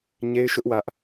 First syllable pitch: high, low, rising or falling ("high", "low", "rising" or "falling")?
high